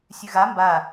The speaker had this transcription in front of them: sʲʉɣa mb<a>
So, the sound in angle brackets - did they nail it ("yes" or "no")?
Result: yes